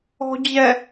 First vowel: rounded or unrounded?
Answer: rounded